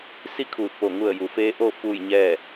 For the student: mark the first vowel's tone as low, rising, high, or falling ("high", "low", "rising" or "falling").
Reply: falling